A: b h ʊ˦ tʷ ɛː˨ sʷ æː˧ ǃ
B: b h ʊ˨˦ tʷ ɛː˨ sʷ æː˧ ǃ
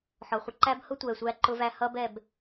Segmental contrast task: A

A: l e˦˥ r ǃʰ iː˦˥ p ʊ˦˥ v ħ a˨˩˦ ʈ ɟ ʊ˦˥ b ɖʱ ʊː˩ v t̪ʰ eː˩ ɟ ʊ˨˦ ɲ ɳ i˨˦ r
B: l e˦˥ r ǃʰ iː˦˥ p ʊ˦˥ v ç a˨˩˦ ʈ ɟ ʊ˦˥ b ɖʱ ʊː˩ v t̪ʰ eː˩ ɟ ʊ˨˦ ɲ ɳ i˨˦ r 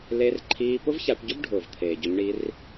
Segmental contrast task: B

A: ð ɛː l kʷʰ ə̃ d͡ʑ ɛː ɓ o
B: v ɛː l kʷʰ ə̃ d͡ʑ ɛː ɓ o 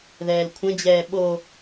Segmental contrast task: A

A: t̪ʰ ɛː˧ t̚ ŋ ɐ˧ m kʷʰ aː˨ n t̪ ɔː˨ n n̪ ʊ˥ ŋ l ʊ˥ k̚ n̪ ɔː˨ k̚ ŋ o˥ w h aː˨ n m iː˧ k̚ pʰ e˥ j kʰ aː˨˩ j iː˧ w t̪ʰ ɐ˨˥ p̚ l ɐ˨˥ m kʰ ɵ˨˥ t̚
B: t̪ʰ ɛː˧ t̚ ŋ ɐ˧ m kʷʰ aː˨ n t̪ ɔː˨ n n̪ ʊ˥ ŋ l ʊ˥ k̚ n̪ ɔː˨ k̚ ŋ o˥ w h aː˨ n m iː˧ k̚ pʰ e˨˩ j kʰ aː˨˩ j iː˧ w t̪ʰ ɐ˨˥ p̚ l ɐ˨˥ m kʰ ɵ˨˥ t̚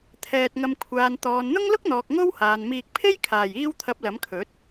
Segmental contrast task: A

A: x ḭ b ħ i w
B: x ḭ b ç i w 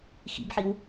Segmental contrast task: A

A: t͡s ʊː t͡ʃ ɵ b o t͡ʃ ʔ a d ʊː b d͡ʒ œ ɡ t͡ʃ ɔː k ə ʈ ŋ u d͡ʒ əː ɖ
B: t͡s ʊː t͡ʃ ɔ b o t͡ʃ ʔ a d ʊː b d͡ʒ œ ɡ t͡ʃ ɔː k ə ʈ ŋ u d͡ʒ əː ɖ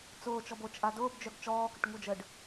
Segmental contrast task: B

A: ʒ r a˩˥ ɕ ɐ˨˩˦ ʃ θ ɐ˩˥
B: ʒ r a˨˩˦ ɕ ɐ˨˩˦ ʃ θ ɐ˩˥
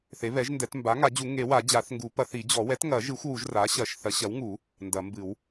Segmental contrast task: A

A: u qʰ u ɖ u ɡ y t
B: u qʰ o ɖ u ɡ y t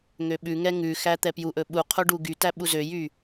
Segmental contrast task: B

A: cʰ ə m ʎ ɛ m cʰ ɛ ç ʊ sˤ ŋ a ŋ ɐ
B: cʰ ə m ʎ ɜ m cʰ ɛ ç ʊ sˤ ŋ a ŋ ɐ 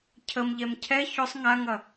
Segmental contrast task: A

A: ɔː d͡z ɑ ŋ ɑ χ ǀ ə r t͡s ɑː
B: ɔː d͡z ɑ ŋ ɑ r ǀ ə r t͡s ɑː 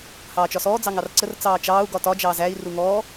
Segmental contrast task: B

